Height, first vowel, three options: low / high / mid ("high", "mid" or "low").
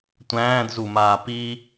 low